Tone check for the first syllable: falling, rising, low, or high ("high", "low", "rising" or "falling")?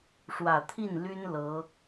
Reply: low